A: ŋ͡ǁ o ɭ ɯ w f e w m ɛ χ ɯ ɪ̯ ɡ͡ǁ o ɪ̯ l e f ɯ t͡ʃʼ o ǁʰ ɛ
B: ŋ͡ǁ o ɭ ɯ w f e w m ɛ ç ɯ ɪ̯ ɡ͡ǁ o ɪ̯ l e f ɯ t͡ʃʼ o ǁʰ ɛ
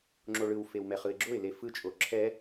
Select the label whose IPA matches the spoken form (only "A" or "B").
A